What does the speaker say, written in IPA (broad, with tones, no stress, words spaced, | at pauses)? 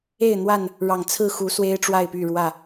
e˥˨ɪ̯n̪wa˥˨n | ɻɑ˨˩ŋ t͡sʰɹ̩˥˨ xu˨˦ swe˦ɪ̯ʈ͡ʂwa˥˨ɪ̯py˥˨ɻwä˥˨